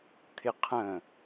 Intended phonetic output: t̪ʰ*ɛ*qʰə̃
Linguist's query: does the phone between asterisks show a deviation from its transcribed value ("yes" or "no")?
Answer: yes